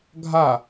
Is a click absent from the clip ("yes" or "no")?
yes